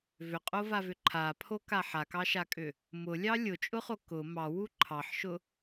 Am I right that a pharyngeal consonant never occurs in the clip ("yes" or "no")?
no